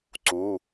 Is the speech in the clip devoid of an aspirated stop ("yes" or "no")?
yes